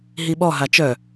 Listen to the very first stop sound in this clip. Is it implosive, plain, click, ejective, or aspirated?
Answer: implosive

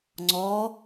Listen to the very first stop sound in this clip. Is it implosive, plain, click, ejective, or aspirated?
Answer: click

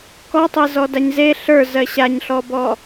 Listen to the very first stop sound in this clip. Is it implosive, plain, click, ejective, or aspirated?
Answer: plain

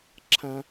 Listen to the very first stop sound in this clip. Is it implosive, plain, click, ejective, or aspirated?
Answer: click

